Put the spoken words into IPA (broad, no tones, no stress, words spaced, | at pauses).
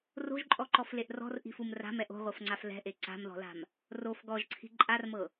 ro̤ʒǃʼɔǃɔfleʔ rɔ̤rʔi̤fum ra̤mɛʔ o̤ʁʷɤfŋ͡ǀaf lɛ̤ʔe ǀa̤mðɔ̤la̤m | rof ɡɔʒǀʰi̤ ǃʼarmɤ